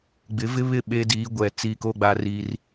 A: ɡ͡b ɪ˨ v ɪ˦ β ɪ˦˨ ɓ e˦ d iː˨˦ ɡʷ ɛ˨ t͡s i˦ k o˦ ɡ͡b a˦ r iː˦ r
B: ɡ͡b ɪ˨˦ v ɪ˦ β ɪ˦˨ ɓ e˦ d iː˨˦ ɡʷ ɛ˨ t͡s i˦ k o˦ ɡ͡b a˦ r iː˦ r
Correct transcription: B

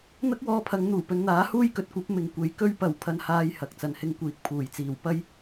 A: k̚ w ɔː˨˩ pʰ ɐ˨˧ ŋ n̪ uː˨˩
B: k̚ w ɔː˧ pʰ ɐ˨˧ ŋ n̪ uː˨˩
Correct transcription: B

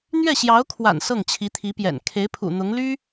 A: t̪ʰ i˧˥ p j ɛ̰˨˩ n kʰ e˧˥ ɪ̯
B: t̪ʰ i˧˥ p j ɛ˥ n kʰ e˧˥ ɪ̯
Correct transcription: A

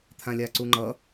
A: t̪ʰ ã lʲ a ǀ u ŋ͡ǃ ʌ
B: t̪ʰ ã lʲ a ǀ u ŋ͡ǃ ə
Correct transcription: A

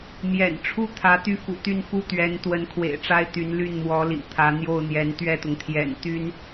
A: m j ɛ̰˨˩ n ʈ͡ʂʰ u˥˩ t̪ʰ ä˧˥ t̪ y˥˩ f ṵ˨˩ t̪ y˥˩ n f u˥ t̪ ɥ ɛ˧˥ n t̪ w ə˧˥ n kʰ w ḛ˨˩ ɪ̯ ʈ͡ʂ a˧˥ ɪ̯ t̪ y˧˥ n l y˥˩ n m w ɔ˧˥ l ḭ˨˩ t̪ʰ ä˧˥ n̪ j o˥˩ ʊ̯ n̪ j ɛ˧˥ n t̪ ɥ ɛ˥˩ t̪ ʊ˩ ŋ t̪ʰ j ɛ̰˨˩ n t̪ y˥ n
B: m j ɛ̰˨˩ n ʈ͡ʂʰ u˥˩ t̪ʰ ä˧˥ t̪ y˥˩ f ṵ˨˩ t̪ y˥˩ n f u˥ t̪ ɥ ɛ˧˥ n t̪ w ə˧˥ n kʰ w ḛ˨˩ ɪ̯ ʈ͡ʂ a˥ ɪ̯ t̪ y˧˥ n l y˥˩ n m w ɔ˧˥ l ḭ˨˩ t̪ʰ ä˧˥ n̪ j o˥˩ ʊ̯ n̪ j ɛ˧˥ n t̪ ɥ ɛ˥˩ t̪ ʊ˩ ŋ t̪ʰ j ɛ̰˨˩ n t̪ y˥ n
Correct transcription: B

